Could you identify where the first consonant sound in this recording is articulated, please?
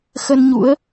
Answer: velar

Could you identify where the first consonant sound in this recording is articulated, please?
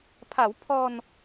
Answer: labial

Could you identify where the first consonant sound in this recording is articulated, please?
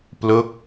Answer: labial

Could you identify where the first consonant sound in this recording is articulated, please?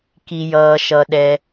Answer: velar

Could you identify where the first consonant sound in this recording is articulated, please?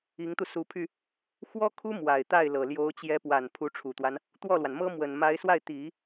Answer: velar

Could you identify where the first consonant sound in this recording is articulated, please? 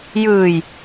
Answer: palatal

